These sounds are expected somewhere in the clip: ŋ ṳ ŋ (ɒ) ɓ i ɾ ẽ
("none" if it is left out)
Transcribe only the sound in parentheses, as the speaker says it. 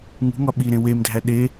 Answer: ɒ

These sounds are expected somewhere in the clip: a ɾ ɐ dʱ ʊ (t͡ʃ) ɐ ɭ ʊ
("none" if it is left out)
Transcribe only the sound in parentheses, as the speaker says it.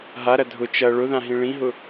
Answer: t͡ʃ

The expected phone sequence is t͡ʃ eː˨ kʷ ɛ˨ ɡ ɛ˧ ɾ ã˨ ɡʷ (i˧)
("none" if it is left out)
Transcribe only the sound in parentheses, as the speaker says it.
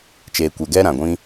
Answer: ĩ˧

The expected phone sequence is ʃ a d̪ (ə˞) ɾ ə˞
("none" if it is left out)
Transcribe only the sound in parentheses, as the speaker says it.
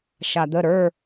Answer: ə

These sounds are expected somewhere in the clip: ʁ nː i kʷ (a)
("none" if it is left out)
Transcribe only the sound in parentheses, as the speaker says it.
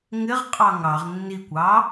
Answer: ɑ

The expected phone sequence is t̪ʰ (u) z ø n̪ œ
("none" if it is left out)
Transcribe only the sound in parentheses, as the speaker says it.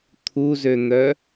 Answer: u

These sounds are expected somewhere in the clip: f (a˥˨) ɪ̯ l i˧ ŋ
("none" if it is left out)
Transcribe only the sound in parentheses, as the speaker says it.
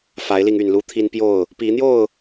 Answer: a˨˦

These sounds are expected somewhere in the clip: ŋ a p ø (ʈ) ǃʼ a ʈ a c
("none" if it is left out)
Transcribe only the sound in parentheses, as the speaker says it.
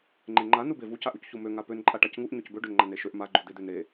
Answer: n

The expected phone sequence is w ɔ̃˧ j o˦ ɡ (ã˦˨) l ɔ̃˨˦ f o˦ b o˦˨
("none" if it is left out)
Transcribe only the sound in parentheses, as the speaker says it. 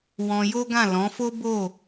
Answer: ã˦˨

